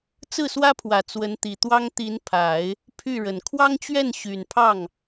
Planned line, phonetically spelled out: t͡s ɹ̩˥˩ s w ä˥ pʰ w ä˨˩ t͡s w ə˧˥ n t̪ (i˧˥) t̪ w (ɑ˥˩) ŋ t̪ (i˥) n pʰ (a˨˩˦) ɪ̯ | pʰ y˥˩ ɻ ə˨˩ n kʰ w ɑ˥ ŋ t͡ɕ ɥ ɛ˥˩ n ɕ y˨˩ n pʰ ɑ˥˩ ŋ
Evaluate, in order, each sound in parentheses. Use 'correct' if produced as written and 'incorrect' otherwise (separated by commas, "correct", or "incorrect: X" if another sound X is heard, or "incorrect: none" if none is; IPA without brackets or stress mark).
incorrect: i˨˩, incorrect: ɑ˥, incorrect: i˧˥, correct